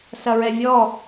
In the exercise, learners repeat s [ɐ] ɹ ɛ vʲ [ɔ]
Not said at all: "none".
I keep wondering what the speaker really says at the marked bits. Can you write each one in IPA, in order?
ɐ, ɔ

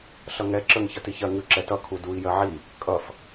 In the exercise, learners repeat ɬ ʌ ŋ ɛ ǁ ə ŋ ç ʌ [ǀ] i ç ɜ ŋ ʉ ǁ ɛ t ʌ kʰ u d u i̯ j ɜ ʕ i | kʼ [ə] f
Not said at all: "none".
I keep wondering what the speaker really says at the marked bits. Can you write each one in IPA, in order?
t, ʌ

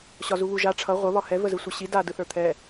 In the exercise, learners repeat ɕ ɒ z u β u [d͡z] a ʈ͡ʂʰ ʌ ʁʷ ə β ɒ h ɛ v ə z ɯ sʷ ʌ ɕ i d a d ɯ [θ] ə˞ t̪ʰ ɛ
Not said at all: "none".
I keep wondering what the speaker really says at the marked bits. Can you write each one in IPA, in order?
ʒ, θ

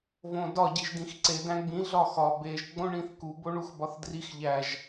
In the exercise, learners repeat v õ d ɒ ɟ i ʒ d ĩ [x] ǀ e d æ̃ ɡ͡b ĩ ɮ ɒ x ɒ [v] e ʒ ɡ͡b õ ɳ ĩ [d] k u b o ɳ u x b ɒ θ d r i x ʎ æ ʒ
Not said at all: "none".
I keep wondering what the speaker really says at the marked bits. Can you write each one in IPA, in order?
x, b, θ

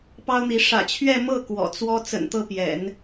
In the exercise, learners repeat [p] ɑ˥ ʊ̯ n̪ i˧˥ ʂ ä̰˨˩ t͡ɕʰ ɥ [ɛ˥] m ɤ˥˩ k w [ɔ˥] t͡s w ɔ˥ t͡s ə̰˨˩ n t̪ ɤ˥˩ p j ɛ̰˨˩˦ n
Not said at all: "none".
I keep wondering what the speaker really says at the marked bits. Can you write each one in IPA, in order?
p, ɛ˥˧, ɔ̰˨˩

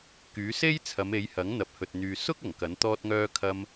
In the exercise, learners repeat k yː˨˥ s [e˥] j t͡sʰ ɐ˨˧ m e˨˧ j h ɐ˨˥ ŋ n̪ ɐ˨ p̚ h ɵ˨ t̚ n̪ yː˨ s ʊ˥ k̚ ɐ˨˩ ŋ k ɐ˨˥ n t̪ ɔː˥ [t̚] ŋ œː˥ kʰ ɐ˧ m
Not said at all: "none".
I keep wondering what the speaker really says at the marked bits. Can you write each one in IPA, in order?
e˥, t̚

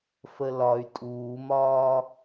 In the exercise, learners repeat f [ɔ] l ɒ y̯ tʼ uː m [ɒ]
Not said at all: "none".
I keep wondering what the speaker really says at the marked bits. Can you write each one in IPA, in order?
ə, ɒː

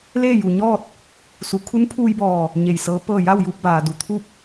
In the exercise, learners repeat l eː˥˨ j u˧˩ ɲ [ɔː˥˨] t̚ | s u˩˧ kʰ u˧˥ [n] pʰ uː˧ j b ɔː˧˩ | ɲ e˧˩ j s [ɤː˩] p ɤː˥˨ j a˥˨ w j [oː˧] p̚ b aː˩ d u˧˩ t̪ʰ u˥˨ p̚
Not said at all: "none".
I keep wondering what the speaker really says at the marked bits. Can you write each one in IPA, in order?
ɔː˥˨, n, ɤː˧˥, uː˧

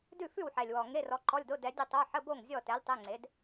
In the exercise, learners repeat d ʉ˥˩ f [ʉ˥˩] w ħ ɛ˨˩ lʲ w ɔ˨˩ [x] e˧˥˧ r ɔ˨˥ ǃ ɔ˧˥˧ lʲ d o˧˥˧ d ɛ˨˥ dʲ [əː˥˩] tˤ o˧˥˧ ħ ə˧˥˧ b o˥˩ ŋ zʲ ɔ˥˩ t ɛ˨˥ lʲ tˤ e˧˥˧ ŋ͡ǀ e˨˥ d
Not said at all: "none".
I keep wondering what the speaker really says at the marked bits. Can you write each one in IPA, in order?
ʉ˥˩, ŋ, ə˥˩

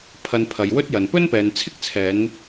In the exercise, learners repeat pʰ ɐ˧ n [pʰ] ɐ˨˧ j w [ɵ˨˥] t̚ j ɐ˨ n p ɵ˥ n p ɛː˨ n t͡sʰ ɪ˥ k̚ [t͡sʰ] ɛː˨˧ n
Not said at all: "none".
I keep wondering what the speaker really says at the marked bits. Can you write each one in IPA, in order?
pʰ, ɵ˥, t͡sʰ

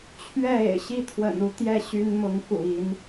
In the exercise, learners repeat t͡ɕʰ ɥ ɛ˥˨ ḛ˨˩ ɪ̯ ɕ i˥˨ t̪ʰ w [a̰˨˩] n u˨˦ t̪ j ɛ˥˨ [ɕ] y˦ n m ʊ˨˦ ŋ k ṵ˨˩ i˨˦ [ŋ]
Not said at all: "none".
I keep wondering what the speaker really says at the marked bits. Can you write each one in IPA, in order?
ə̰˨˩, ɕ, n

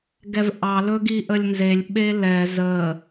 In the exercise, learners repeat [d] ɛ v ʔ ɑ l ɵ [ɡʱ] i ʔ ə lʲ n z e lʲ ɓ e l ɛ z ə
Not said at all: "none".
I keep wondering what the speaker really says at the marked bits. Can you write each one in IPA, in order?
ɡ, ɡ

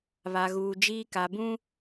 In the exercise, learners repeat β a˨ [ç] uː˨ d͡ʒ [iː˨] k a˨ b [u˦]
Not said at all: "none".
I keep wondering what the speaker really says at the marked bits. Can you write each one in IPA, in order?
ɣ, iː˦, ũ˦

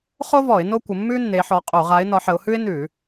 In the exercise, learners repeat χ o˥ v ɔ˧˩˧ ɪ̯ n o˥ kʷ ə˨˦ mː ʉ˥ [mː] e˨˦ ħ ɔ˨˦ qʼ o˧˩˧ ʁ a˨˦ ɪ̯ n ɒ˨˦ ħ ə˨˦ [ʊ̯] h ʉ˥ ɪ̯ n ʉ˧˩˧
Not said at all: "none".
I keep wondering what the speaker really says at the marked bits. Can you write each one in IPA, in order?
nː, ʊ̯

